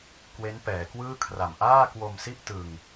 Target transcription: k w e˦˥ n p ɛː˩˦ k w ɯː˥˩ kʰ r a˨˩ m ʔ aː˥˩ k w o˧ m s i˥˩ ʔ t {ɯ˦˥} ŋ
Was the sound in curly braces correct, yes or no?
no